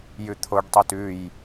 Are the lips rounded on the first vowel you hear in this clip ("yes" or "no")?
yes